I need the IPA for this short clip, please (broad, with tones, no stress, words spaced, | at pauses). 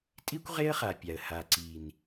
tʼi˦kʷʁe˦ə̯χa˨pʲa˨ə̯ ha˨ǀi˨n